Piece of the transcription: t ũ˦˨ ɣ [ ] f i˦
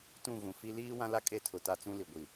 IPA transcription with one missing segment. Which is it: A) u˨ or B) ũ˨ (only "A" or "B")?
B